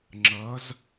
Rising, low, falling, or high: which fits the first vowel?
rising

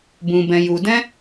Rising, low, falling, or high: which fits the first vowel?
low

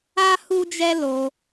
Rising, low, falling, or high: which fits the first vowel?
high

